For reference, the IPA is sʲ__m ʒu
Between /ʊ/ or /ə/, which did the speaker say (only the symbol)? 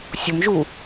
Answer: ʊ